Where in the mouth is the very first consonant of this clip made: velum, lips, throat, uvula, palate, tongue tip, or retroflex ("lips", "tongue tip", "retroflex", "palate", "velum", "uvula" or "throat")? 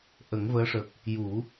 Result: throat